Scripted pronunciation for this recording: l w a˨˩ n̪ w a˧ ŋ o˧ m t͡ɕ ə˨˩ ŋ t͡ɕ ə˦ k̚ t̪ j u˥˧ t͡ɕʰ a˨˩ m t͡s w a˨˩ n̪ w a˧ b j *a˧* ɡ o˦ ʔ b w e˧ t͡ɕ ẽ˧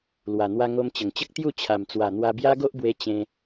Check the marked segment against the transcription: incorrect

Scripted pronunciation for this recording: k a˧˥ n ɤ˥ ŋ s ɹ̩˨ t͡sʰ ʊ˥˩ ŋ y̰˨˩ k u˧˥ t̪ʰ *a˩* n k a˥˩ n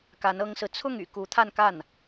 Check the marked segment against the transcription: incorrect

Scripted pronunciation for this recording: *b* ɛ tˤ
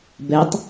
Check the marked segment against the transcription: correct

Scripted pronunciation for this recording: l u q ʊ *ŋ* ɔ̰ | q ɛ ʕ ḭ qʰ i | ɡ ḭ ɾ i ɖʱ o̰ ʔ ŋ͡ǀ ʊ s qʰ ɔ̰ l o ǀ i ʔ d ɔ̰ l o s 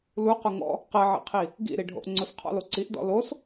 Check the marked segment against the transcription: correct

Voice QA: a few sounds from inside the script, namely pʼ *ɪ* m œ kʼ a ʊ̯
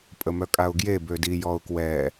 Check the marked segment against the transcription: incorrect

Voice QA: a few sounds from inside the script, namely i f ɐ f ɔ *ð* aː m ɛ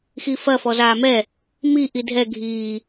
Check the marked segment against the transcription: incorrect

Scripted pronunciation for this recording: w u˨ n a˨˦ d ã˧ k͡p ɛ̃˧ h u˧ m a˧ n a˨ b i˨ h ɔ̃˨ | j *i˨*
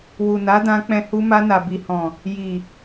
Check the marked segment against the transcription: correct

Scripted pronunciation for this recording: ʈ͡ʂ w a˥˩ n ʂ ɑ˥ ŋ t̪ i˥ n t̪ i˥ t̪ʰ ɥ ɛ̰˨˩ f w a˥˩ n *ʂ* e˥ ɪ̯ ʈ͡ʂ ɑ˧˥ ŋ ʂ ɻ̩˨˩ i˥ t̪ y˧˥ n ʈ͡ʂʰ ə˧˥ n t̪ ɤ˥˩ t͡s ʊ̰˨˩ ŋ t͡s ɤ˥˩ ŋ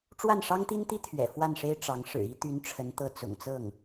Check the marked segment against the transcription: correct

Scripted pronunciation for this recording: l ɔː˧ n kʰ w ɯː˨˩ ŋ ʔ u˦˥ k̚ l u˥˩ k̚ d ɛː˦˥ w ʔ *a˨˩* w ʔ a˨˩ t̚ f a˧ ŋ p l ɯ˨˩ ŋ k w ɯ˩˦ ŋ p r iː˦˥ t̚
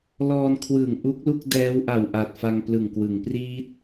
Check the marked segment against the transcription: correct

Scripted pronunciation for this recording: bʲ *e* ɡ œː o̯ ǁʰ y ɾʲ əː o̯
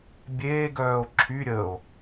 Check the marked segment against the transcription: incorrect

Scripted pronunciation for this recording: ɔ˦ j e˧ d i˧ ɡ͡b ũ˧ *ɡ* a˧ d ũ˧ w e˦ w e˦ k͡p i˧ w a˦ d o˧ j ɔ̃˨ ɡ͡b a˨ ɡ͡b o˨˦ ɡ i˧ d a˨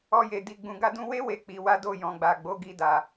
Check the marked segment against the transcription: correct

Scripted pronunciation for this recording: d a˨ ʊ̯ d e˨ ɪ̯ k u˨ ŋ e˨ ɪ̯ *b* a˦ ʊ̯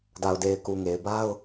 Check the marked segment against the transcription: correct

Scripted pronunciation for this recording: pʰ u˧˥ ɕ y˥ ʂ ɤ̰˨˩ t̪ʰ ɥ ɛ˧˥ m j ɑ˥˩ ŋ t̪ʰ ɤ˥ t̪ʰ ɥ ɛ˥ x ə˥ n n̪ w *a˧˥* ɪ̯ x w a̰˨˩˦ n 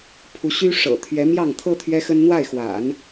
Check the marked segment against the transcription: incorrect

